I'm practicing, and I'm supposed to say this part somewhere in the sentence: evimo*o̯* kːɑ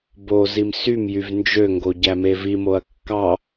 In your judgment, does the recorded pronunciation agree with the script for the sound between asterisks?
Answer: no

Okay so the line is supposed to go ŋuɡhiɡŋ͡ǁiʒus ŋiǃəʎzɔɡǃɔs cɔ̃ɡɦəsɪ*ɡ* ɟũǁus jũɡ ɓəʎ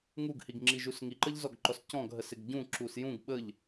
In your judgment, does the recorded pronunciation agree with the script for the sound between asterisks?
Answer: yes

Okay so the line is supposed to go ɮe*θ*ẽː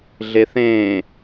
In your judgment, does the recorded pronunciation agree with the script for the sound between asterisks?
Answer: yes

